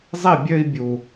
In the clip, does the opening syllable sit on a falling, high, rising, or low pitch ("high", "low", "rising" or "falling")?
falling